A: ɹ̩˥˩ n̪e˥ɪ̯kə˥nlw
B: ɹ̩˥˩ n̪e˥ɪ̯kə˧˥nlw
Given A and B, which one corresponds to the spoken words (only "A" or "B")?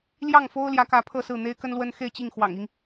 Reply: A